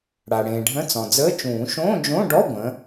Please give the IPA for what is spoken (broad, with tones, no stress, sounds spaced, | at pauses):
ɽ a˩ ɽ ẽː˩ ɖʱ ə̃˧˥˧ t͡s ɔ̃˩ d͡z əː˧˥˧ t͡ʃ ũː˨˩˦ ʃ õː˧˥˧ d͡ʒ õ˧˥˧ ɖ ɔ˧˥˧ ɡʷ ə̃˩˥